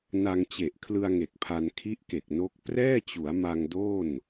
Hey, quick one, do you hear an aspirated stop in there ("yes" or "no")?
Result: yes